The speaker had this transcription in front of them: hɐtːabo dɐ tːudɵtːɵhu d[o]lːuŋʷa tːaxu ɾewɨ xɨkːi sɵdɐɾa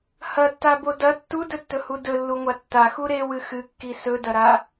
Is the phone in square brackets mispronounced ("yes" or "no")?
yes